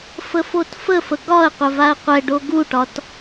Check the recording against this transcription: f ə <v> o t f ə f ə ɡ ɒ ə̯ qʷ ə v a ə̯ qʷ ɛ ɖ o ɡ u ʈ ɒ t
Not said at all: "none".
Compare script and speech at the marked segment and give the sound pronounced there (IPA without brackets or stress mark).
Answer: f